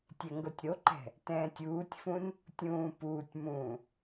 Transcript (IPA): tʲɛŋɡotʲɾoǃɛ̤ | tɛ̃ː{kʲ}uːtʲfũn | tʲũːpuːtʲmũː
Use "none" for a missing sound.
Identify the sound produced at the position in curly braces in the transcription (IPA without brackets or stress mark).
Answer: tʲ